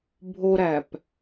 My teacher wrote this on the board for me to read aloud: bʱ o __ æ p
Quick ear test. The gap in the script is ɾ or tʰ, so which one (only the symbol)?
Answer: ɾ